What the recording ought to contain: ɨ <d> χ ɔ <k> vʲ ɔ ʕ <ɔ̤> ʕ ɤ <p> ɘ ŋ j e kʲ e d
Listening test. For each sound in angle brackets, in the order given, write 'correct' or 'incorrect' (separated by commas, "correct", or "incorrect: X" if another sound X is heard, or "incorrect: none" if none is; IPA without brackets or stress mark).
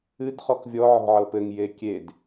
correct, correct, correct, correct